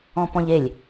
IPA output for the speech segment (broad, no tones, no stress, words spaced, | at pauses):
ɔ̃pɔ̃ʎelʲ